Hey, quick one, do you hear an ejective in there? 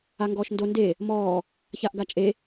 yes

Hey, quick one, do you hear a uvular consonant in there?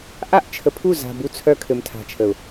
no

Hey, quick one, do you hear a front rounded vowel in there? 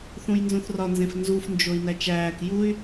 yes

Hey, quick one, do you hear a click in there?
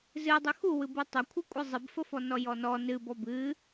no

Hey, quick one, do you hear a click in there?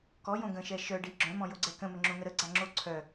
yes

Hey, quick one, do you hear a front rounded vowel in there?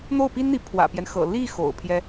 no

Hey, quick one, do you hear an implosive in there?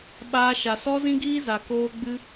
yes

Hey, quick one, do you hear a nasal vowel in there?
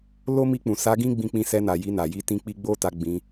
yes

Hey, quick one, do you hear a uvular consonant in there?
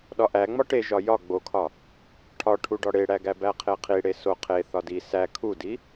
yes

